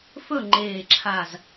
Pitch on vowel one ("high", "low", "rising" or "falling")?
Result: falling